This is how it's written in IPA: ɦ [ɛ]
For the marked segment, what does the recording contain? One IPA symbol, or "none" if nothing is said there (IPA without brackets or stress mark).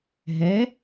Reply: ɛ